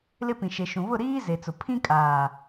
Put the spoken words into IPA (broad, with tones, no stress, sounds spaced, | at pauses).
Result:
l ɪ˦ p ĩ˨ ʃ e˨ ʃ ũ˨ β ʊ˦˨ ɾ iː˦ z e˨ t͡s ʊ˨ pʰ ĩ˦ kʼ aː˨